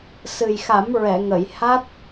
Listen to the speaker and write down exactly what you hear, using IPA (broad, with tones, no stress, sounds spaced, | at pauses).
s ɨ˨˩ j x a˨˩˦ m ɹ ɛ˨˩˨ ŋ ə˨˩˨ j h a˦˥ t̚